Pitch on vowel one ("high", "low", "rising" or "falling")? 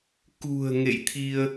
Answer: low